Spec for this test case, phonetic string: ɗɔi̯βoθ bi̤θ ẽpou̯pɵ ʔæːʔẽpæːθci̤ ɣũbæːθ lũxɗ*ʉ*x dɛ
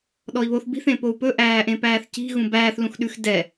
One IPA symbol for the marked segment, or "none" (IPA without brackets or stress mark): ʉ